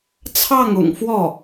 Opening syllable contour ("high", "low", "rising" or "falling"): falling